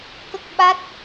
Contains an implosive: yes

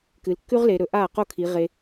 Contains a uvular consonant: yes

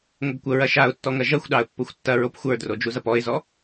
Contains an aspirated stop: no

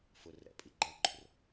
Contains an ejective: yes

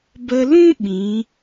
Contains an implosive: yes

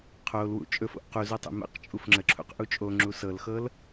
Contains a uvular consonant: yes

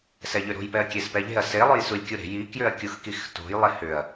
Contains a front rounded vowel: yes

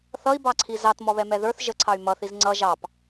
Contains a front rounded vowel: yes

